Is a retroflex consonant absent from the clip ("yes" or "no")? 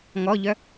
yes